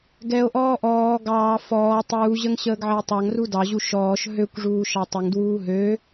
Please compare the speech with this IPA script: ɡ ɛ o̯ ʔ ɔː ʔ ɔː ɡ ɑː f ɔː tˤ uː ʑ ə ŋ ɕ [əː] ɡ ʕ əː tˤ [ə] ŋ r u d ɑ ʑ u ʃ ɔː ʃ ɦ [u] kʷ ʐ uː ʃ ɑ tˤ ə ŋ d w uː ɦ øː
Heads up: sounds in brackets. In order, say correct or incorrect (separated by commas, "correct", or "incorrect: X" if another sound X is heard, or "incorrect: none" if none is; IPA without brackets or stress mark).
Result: correct, incorrect: ɑ, incorrect: ø